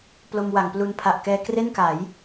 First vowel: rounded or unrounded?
rounded